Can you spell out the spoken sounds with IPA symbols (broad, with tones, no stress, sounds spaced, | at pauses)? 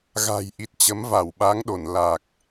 ɣ a̤˨˩ j ʔ i˨˩ t̚ t͡ɕ ə˨˦ m v a˧˩ w ɓ a˨˦ ŋ ɗ o˧˩ n l a˨˩ k̚